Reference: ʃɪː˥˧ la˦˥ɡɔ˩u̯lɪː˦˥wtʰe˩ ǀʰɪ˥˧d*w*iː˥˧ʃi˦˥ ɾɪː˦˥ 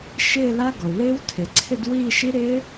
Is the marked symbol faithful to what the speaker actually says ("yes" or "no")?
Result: yes